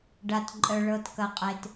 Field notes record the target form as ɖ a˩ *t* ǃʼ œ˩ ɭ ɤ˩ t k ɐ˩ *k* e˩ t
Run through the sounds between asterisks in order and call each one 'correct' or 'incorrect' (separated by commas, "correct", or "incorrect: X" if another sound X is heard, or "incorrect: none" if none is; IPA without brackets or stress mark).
correct, incorrect: qʼ